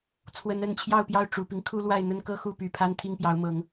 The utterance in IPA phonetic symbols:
t͡sʰ w ə˨˦ n ə˨˦ n t͡ɕʰ j ɑ˥˨ ʊ̯ p j ɑ˥˨ ʊ̯ ʈ͡ʂ u˨˩ p i˦ ŋ kʰ u˦ l w a˥˨ ɪ̯ n̪ ə˦ n k ɤ˦ x u˥˨ p y˨˩ pʰ a˦ n t̪ʰ i˥˨ ŋ p j ɑ˨˦ ʊ̯ m ɤ˨˦ ŋ

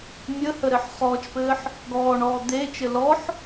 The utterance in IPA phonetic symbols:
mʲ ə h ə ɾ ɘ ħ χ ɔː t͡ʃ p ɘː ħ | ɡ ɔː ɳ ɔː d̪ eː t͡ʃ ɘ l ɔ ħ

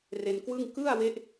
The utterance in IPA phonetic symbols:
r e˧ n k w ɯ˥˩ ŋ k ɯ˥˩ a̯ w e˦˥ ʔ

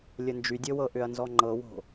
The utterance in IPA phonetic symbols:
lʲ ə n d͡ʒ y dʲ ɤ w ɤ ʔ ʏ ɐ̯ n z ɔ ŋ͡ǃ ɤ w o̤

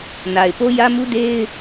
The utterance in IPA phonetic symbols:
n a˨ ɪ̯ p o˦ j ä˦ m u˦ d e˦ ɪ̯

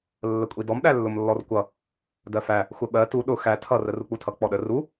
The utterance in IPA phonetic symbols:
lː ə kʷʼ i d ɔ m ɗ æ lː ʊ m lː ɔ r kʷ ʌ | d ɜ f æ | xʷ ə ɓ ɜ t u ɗ ʊ x æ tʰ ʌ r ə r u k͡p u tʰ ʌ k͡p ɔ ɗ ə r u

